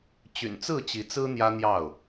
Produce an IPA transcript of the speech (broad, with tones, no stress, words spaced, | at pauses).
t͡ɕy̰˨˩nt͡sɹ̩˥˨t͡ɕi˨˦ t͡sɹ̩˦ n̪jä˦n̪jɑ˥˨ʊ̯